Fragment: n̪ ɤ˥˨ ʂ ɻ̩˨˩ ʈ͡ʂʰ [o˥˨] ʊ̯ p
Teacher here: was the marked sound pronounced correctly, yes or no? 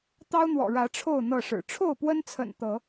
yes